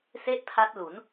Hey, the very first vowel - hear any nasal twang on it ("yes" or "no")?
no